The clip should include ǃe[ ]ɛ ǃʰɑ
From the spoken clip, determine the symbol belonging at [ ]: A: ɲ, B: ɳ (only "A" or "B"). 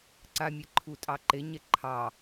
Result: A